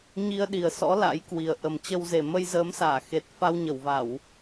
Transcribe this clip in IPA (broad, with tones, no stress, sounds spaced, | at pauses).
ɲ i˧ ə̯ ɗ i˨˩ ə̯ s ɔ̰˧˥ l a̰˧˥ j k w i˨˩ ə̯ ʔ ə˨˩ m t͡ɕ ə˧ w z e˨˩ m ə˧ j z əː˨˦ m s aː˧˩ x e˨˩ t̚ f a˧ w ɲ ə˧˩ w v a˧˩˨ w